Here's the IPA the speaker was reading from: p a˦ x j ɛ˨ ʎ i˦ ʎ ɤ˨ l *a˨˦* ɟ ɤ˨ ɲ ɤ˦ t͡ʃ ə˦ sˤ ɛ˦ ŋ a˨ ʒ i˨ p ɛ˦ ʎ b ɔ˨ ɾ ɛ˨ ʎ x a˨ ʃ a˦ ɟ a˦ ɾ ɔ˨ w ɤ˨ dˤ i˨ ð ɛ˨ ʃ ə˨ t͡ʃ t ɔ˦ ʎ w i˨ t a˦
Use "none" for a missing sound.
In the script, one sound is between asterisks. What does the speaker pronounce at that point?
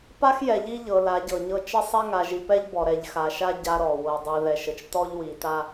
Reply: a˨˦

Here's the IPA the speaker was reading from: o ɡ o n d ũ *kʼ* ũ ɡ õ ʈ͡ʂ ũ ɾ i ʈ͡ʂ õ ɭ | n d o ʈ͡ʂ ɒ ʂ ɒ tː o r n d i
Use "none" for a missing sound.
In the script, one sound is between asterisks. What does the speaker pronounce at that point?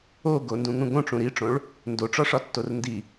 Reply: ŋ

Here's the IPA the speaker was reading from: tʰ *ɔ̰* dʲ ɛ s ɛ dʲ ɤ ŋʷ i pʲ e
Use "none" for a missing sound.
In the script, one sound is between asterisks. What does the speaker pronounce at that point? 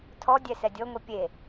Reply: ɔ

